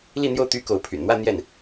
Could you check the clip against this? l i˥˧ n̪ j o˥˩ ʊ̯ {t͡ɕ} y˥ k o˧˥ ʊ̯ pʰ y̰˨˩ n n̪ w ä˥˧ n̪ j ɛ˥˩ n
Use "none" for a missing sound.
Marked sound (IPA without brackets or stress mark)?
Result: t̪